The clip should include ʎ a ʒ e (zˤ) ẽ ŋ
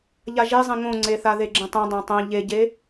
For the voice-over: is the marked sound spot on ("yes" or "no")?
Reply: yes